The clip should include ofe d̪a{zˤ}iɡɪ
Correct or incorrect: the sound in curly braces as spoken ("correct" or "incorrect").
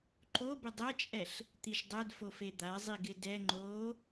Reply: correct